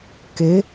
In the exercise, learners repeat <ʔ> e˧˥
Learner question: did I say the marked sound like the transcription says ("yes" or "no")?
no